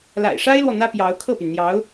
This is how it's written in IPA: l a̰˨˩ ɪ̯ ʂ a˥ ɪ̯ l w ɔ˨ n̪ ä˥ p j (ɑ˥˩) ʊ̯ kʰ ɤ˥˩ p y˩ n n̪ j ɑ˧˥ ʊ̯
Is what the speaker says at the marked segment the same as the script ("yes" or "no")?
no